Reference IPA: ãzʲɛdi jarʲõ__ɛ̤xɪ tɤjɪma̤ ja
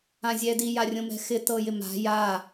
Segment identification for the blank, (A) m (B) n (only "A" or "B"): A